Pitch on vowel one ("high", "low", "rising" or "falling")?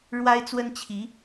high